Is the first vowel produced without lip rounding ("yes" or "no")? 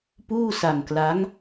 no